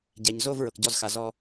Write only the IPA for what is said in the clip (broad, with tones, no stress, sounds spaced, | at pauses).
ɟ ɛ˨ ɲ z o˥˧ v ɹ ɤ˨ k ɟ ɔ˥˧ z x a˨ z ɔ˥˧